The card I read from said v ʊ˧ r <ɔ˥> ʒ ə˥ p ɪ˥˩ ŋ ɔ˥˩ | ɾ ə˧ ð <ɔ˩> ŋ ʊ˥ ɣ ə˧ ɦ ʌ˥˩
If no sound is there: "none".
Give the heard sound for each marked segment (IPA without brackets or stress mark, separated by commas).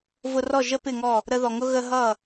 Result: ɔ˥˩, ɔ˩